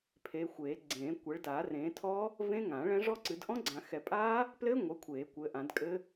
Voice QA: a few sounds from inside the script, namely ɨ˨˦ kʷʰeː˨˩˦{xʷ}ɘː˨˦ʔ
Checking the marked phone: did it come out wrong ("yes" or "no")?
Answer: yes